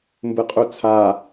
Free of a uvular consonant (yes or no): no